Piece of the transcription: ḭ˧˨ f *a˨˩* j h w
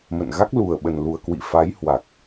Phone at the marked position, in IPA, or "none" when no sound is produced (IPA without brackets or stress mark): a˨˦